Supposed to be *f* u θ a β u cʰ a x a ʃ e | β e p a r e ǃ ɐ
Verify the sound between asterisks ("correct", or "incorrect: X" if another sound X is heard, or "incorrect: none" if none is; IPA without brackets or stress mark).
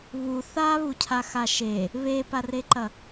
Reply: incorrect: β